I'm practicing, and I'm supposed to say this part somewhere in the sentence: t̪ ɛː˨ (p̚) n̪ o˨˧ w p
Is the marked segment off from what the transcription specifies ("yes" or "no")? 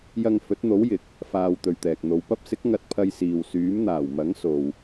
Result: yes